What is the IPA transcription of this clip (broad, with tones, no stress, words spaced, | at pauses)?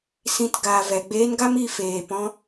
sĩ˨t ɡaː˨vɛ˨ɡ͡beː˧n ɡa˦mi˧ feː˨pɔ̃˧